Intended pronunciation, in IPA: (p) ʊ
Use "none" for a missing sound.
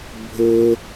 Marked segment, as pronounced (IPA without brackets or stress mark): bʱ